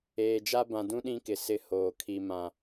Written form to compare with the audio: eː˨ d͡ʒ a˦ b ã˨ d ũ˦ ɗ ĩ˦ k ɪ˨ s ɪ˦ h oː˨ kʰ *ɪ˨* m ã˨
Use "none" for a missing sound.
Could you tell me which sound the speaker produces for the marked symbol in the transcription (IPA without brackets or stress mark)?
i˨